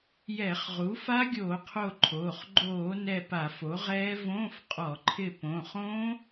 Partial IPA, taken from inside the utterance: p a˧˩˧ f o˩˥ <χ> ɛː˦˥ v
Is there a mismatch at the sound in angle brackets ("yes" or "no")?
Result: yes